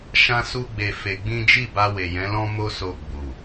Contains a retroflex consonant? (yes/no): no